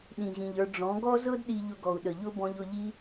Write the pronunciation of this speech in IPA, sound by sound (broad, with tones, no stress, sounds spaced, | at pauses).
ɗ ĩ˨ ʑ ĩ˨ ʎ ə˞˧ ɖ͡ʐ ɔ̃˨˦ ɡ ɔ˦ z ɤ˦ d ɗ i˧ ʎ ʊ˧ ɡ ɔ˨ u̯ ɗ ə˨ ʎ ʊ˦ b ɔ̃˧ ʎ ʊ˧ ʎ i˦